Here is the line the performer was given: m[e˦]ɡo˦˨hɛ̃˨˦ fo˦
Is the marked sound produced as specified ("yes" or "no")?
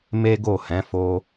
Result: yes